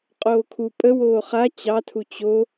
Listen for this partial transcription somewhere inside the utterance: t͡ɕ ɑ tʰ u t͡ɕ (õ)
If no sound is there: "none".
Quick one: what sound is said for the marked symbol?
o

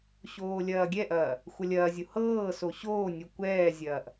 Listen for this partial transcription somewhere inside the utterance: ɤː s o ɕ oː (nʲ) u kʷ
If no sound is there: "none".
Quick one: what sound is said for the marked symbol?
nʲ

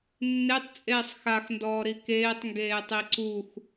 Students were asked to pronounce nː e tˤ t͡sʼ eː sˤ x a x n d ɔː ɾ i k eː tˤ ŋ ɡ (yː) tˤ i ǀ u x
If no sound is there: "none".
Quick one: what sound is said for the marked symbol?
eː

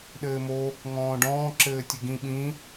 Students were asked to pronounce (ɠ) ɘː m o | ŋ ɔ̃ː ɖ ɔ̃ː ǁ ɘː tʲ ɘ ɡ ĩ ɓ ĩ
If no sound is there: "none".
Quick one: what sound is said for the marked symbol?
ɗ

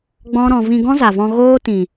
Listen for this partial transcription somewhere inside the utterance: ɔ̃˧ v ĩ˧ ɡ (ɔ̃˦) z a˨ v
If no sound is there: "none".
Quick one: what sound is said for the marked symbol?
ɔ̃˦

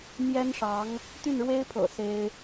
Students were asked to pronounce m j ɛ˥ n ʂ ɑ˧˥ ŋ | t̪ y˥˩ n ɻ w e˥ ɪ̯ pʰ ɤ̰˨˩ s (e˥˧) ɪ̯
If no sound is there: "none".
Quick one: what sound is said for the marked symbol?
e˥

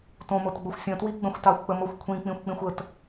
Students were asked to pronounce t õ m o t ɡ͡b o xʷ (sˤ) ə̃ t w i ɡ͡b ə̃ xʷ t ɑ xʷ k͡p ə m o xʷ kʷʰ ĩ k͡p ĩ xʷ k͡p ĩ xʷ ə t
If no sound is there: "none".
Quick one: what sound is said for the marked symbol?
sʲ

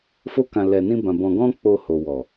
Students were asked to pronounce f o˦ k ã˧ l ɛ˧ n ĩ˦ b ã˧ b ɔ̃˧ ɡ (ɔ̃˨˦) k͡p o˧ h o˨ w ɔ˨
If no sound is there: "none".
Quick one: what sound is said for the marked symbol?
ɔ̃˦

